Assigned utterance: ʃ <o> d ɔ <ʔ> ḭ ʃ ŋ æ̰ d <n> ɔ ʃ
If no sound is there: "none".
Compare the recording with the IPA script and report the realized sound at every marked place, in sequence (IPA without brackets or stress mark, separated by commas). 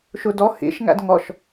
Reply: u, h, ŋ